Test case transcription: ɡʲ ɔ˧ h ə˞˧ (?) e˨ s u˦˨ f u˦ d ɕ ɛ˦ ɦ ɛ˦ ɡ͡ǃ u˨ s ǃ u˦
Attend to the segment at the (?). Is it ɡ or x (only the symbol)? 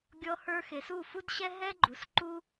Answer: x